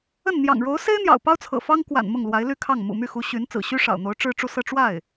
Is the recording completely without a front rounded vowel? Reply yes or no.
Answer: no